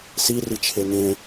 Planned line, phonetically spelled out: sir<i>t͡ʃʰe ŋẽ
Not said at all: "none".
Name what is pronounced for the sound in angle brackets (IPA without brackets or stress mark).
i